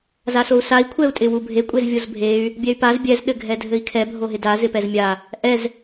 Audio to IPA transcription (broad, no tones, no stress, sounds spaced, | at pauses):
z a s o u̯ s a i̯ kʷʰ ɛ u̯ tʼ ɪ w u bʱ e kʷʼ e z vʲ o z bʱ e y̯ | bʲ ɛ y̯ p a z bʲ ɛ z ɗ ɘ ɡʱ ɛ dʱ ɘ i̯ kʰ ɛ bʱ o ɦ ɪ d a z ɪ p ɛ z mʲ a | ʔ ɛ z